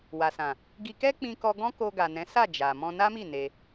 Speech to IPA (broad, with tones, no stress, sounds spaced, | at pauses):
w a˨ s ã˨ | ɡ i˧ k ɛ˦ k͡p ĩ˧ k ɔ˧ ɡ ɔ̃˦ k o˧ ɡ a˨ n ɛ̃˨˦ s a˦˨ d͡ʒ a˨ m ɔ̃˧ n a˦ m i˦˨ n e˧